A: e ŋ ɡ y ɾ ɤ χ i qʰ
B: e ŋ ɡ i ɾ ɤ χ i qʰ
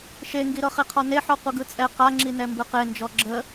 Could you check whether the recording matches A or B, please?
B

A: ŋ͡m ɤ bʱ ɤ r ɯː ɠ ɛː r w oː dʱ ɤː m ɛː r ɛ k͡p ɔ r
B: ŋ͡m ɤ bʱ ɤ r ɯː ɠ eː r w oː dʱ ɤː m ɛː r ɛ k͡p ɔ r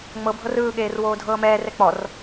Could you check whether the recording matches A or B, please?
B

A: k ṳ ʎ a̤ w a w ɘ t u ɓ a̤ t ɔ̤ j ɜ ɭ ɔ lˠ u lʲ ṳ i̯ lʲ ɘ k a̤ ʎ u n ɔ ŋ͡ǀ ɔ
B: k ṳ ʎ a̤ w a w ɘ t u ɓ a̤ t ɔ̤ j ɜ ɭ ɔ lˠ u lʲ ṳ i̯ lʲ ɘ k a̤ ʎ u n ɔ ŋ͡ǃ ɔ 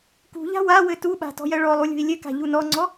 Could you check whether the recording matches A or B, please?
A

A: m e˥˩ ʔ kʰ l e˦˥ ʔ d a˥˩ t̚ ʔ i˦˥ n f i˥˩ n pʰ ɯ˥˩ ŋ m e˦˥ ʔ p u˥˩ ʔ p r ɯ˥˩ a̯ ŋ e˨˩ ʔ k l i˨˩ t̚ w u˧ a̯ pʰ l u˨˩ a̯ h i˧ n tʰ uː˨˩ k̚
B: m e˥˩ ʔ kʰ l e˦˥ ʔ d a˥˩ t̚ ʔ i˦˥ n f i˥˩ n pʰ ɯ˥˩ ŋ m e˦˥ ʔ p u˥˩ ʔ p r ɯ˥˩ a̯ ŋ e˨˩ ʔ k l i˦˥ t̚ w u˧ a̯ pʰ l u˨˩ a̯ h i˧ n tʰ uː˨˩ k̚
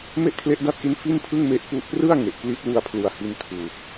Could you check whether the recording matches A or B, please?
B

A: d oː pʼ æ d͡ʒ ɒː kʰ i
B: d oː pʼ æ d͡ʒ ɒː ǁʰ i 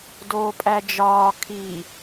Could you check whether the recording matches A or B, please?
A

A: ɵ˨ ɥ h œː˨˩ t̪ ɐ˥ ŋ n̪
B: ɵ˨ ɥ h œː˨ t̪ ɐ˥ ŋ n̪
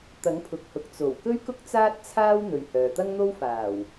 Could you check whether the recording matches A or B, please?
B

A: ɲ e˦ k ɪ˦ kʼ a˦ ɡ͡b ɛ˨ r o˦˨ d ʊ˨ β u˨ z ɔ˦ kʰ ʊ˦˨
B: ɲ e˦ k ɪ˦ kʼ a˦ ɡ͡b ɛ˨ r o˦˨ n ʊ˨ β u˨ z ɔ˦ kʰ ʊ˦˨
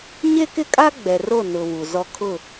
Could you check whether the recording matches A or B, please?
B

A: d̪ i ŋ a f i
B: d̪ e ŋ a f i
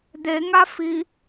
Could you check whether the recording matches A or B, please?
B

